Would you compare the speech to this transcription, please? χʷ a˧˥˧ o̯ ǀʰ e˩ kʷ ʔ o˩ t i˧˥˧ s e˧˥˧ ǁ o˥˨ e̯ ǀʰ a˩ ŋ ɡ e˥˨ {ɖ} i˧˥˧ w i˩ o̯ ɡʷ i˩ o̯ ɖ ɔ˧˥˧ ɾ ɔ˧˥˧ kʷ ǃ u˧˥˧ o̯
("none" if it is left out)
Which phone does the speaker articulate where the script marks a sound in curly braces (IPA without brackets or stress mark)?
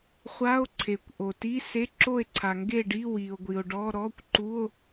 ɖ